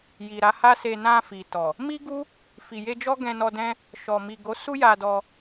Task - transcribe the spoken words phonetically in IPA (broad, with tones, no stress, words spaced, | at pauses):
ji˨ɾa˨˦ha˦se˧ nã˧fi˨tɔ˨ | mi˦ɡu˦ | fi˨je˧d͡ʒɔ˦ ɡɛ̃˧nɔ˧dɛ̃˦ | ʃɔ˨mi˨ɡo˨˦ su˦ja˧dɔ˧